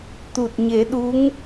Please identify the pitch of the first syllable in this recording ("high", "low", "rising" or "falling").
low